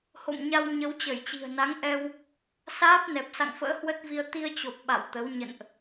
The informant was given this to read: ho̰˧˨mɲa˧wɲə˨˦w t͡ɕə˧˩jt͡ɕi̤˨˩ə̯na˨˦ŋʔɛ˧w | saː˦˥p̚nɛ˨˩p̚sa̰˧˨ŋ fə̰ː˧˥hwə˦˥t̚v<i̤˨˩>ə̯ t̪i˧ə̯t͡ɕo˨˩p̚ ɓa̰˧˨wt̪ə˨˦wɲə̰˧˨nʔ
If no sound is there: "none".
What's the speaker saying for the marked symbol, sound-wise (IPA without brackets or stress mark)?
i˧